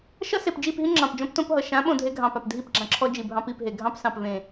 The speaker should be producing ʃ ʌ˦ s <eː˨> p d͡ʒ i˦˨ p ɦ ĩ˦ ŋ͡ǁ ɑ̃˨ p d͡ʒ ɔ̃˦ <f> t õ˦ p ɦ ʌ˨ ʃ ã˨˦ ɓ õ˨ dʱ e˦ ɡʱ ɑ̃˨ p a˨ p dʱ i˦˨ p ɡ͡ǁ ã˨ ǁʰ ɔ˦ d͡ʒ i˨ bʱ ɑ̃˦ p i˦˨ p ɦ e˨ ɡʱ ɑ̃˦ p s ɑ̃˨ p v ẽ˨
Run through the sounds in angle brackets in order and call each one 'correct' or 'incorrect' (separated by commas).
incorrect, incorrect